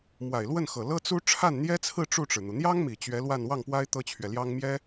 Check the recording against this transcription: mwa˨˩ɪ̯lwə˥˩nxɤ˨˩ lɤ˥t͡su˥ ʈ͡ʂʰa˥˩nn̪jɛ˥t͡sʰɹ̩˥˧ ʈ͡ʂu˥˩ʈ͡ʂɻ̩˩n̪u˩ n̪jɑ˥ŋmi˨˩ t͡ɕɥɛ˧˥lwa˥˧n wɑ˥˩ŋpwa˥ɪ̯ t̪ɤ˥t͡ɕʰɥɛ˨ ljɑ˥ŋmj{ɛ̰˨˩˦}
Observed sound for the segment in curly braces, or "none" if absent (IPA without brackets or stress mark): ɛ˥